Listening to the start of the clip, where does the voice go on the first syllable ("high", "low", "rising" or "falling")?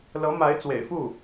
rising